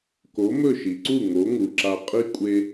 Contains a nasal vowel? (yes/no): no